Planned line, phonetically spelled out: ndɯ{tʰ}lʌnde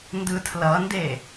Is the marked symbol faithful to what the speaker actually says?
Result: yes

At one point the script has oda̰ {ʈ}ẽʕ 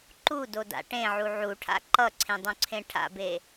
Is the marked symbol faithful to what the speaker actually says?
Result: yes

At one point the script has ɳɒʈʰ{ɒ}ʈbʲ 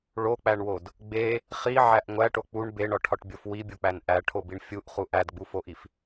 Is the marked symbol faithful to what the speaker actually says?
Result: yes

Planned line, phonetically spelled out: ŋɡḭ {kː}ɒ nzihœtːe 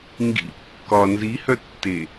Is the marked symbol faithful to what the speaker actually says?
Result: yes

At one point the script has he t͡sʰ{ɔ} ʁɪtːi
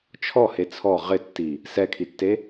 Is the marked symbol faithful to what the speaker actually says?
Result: yes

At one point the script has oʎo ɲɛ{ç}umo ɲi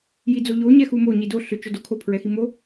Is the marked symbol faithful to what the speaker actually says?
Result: no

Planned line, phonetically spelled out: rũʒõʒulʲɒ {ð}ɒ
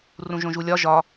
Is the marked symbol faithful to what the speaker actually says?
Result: no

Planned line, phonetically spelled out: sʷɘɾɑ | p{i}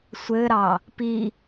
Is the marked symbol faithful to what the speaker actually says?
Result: yes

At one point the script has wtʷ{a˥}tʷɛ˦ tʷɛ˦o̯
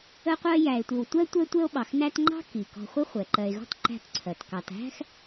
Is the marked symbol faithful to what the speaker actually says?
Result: no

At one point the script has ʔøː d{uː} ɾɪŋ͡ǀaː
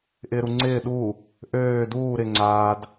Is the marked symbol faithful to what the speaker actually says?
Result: yes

